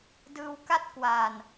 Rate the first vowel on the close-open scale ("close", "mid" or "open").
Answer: close